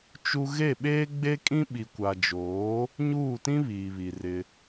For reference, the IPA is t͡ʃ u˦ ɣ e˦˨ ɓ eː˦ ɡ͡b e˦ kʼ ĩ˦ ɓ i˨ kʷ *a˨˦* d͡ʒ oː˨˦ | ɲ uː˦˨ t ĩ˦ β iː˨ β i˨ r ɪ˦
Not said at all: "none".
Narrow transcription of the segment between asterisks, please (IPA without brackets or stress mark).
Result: a˨